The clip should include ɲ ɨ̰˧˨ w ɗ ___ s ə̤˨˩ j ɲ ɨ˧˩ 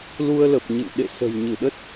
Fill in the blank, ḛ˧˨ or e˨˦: ḛ˧˨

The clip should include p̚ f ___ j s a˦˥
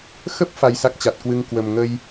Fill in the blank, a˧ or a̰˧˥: a˧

